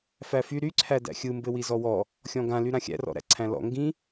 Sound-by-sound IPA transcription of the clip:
fæfy ɾyǀʰæ dæ̰xʲɯ mbɘwizɔwɔ | xʲɔ̃ɡã lyɾãxʲæ̰rɔ̰ ɾæ̰ǀʰæ̃lɔ̰ ŋɡĩ

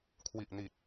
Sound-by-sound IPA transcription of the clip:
kʰwi˨˩ʔni˨˩t̚

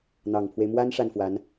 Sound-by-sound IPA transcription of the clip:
n̪ɑ˨˩ŋpʰwe˦ɪ̯mwa˥n ʂa˥˩nfwa˧˥n

